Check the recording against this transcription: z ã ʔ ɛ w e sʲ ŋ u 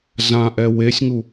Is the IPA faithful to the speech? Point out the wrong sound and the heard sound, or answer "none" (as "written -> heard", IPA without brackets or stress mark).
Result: none